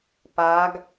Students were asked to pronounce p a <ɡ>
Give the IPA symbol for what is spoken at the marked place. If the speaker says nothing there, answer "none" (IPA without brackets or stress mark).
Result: ɡ